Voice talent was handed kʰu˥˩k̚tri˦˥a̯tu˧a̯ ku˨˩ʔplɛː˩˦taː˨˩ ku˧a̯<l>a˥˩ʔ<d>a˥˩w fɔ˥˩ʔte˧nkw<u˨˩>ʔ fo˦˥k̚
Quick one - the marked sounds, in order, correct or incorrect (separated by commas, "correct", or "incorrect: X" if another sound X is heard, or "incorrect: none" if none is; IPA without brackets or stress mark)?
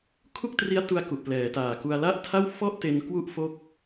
correct, incorrect: tʰ, incorrect: u˦˥